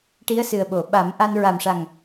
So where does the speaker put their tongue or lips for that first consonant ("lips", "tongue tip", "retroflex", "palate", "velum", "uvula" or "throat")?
retroflex